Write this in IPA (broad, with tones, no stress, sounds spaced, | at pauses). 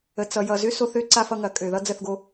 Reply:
ə˨ t͡s ʌ˨ j ʌ˨ z ʏ˦ s o˦ θ ø˦ ǀ a˦ f ʌ˦ ŋ ɐ˨ kʼ ø˨ ð ʌ˦ d͡z ə˦˨ θ ɡ o˦